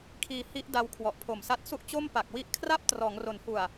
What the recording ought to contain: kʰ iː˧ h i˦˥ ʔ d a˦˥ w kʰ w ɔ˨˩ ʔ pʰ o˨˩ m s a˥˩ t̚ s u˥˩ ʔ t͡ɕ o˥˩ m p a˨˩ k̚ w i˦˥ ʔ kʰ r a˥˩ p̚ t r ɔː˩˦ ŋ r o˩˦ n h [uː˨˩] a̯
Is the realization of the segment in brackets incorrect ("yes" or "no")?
yes